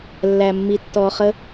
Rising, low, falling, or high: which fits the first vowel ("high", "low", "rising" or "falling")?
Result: low